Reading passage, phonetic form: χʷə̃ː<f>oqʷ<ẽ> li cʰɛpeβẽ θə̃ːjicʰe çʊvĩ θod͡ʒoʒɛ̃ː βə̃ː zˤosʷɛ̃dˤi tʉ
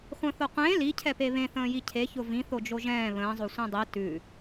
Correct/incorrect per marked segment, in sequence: incorrect: θ, incorrect: ẽː

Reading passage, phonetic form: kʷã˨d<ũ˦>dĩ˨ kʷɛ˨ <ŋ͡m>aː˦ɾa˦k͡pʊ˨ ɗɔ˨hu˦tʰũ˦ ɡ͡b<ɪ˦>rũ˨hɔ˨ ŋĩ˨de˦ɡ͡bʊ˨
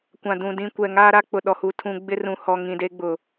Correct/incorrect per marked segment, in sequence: incorrect: ũ˨, incorrect: ŋ, correct

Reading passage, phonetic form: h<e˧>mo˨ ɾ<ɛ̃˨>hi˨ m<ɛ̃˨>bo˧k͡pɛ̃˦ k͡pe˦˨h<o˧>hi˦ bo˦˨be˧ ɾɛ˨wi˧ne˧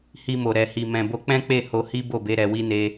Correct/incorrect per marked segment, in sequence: incorrect: i˧, incorrect: ɛ˨, correct, correct

